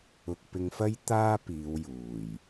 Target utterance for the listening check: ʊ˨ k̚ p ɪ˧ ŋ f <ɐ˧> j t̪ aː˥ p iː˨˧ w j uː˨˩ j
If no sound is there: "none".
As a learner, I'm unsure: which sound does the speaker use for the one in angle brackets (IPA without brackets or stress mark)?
ɐ˥